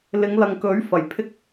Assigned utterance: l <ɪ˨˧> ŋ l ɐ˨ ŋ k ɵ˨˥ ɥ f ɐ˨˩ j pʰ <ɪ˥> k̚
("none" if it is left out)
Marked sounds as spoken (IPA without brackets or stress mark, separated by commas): ɪ˨˧, ɪ˥